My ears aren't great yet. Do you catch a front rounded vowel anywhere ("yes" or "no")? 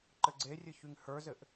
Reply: yes